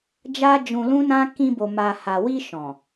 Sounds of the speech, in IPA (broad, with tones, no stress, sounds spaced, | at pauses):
d͡ʒ a˦ d͡ʒ ũ˧ l ũ˦ n ã˦ k ĩ˧ b o˨ m a˨ h a˨ w i˧ ʃ ɔ̃˨